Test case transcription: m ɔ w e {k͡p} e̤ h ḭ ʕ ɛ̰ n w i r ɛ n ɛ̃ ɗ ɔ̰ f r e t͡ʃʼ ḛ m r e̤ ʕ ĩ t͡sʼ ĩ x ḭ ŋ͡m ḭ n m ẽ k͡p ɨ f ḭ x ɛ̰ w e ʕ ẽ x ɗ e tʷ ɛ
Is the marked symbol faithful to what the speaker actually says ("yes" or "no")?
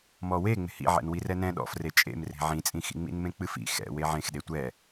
no